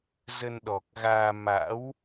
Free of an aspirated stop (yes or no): yes